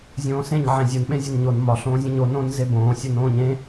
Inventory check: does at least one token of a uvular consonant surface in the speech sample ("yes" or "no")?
no